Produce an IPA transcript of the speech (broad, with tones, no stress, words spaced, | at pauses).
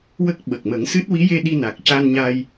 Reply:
wə˦˥k̚ ɓə˨˩k̚mə˨˩˦ŋsɨ˦˥t̚ wi˧˥je˧ ɗi˧na˨˩k̚ca˧nɲa˧j